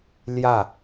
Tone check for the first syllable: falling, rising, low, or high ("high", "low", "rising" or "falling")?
falling